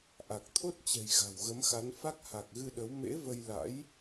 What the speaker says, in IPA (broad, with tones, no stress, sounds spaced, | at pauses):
ʔ a˨˩ k̚ t̪ʰ o˦˥ t̚ t͡ɕ ɛ̤˨˩ j ɣ a̤˨˩ w ɣ ə˨˦ m x a˨˦ n f a˦˥ k̚ h a˨˩ k̚ ɣ ɨ˧ ɗ ə˨˦ w m ḛ˧˥ v ə˧ j l a̰˧˥ j